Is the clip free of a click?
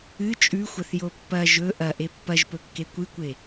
yes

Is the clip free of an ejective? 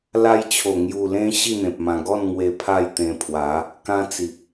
yes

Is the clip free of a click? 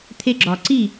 no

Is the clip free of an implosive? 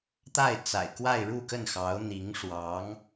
yes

